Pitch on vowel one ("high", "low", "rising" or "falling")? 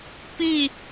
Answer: falling